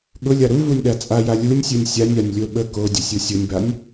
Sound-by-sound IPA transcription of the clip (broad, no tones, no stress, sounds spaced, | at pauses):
ɠ ʊ lʲ a ɾ u v u nʲ ɗ a t͡sʼ a j a lʲ u nʲ sʲ u nʲ sʲ a nʲ a nʲ lʲ o ɓ ə k o dʲ ə sʲ u sʲ ʊ nʲ b a nʲ